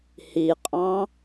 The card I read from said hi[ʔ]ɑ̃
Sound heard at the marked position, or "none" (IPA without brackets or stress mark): qʼ